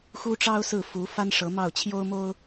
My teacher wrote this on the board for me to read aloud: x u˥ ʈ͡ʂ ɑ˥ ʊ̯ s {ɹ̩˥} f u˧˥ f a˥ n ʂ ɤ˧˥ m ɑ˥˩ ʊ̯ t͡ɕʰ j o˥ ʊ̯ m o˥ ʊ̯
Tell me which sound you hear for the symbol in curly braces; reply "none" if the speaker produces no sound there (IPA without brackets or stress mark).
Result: ɹ̩˥˩